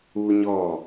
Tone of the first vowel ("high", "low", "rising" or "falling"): high